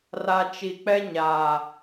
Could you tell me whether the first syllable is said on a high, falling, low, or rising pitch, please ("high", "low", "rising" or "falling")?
low